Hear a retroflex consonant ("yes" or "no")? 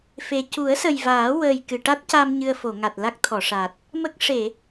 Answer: yes